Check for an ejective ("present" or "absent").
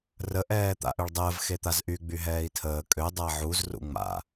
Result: present